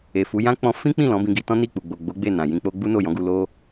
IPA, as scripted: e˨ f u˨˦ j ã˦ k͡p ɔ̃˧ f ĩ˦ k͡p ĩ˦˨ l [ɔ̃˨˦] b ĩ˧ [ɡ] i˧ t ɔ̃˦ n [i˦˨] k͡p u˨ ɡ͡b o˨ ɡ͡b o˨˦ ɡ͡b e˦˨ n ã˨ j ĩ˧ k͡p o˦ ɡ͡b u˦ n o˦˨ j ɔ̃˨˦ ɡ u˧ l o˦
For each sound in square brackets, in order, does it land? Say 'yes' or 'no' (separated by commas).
yes, yes, yes